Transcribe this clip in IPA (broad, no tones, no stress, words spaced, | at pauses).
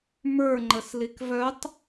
mə˞ ŋ͡ǃəslikvœtˤ